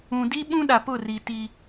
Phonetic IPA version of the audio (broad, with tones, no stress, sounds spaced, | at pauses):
ũ˨ d i˦ ɓ ũ˦ ɗ a˨ p ʊ˦˨ r i˨ t i˦